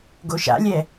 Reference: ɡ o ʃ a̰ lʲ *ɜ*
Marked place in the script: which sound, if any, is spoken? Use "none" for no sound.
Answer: ɛ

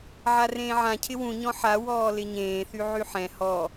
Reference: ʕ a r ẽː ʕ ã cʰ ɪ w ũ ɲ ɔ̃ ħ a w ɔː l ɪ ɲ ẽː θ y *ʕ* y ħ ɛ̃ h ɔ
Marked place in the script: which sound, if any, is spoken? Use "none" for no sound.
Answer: ʕ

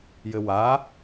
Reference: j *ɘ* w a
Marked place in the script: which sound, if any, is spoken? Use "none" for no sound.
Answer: ɘ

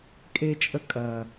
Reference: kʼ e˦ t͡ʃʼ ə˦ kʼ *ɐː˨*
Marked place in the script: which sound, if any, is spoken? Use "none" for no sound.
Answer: ɐː˨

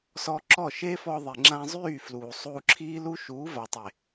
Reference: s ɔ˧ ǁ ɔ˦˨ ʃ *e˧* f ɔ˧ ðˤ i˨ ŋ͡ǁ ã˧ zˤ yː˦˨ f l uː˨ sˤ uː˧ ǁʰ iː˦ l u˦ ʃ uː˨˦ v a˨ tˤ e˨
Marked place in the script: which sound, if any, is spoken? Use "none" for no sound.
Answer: e˦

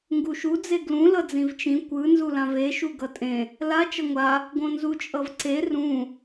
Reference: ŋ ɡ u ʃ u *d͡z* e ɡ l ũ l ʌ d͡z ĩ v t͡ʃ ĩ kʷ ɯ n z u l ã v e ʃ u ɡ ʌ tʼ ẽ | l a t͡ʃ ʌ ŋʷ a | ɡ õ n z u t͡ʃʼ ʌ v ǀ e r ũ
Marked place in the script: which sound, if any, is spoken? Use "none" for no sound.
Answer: d͡z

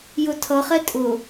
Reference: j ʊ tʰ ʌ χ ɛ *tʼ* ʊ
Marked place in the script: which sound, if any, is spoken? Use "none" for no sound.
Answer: tʼ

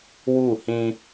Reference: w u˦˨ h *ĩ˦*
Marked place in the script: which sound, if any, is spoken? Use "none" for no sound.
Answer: ĩ˦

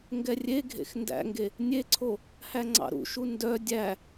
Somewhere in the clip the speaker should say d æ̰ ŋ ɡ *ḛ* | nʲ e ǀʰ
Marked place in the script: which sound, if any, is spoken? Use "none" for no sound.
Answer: e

